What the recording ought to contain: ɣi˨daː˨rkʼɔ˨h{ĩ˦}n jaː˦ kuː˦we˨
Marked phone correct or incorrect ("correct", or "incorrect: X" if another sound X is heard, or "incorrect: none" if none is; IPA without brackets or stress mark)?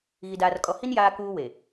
incorrect: i˦